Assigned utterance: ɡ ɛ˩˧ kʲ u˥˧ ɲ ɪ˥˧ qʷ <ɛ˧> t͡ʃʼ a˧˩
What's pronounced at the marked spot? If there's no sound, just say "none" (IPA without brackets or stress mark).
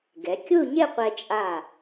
ɛ˧